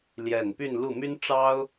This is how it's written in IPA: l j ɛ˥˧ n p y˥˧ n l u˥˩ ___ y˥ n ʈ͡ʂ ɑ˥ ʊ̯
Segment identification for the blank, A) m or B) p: A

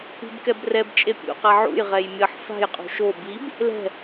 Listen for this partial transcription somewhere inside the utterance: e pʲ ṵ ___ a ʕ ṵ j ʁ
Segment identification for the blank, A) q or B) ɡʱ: A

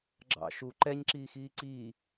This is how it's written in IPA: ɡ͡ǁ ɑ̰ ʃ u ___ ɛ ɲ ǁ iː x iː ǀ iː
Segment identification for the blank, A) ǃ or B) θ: A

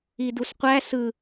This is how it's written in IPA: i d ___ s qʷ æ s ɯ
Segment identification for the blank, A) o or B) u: B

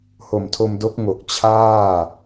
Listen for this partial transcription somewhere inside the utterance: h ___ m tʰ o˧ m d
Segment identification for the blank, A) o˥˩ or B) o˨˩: B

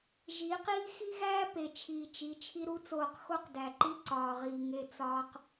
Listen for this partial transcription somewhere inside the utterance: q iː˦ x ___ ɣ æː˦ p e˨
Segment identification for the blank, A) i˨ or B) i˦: B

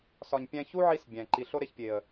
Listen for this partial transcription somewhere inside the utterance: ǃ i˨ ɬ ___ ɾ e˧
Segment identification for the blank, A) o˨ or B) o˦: B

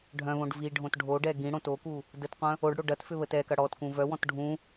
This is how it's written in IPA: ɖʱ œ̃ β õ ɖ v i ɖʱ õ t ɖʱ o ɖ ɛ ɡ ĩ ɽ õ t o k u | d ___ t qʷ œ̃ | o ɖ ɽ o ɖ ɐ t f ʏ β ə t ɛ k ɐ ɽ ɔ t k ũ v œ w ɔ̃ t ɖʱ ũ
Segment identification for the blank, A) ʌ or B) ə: B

